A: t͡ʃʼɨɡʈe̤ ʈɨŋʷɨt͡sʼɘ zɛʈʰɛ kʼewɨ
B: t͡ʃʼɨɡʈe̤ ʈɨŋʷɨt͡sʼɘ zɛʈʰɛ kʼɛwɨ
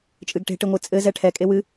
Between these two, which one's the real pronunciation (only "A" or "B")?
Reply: A